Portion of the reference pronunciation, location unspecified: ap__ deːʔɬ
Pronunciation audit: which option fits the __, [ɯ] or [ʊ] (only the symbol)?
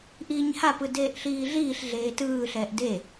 ɯ